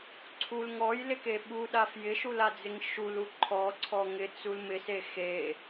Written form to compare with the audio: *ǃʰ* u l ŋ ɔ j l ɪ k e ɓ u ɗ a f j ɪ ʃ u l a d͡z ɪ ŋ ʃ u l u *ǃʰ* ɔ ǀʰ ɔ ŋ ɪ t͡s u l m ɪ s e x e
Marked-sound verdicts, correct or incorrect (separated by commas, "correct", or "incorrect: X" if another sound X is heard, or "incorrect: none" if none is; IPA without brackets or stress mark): incorrect: ǀʰ, correct